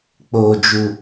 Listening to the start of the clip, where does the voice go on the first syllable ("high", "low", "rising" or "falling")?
low